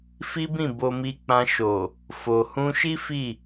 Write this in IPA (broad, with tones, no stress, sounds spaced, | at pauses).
f i˦ b ĩ˦˨ b o˧ m i˧ k͡p ã˧ ʃ o˨ | f o˨ h ũ˧ ʃ i˦ f i˦˨